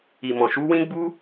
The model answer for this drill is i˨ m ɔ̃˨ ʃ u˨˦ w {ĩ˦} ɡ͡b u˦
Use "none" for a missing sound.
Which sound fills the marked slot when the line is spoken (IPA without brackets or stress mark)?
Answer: ĩ˦